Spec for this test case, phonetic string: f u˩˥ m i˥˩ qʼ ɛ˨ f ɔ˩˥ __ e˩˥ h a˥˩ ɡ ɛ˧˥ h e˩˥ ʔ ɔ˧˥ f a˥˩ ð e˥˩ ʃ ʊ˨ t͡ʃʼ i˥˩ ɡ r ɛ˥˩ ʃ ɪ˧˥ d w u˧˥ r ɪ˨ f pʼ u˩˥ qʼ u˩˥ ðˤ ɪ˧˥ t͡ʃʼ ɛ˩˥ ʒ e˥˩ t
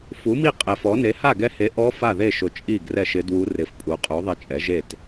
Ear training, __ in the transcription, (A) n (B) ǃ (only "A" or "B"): A